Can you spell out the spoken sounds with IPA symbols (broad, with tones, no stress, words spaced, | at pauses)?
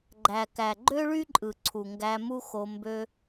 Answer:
ɡ͡ǃæ˩kæ˩ ɡ͡ǃø˥ɭy˥ǃʼɯ˩ ǀʰu˩ŋɡæ˧ mu˥xo˧ mbø˧